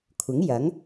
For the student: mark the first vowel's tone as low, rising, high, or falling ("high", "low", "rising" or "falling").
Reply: rising